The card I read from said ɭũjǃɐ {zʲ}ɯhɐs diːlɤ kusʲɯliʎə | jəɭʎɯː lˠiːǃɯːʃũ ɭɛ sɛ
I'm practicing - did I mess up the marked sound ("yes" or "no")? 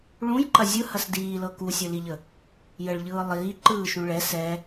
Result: no